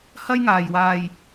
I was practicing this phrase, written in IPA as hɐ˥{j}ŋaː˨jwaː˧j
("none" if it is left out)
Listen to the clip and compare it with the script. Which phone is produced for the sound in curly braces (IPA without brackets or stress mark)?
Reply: j